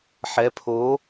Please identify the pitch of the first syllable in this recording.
rising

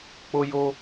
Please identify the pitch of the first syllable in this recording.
high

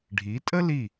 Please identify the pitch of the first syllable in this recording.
rising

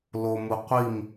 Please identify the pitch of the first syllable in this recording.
low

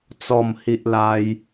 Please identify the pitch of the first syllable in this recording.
falling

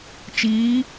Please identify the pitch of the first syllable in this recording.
rising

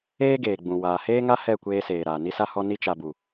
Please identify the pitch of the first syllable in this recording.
high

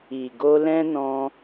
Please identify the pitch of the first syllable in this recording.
low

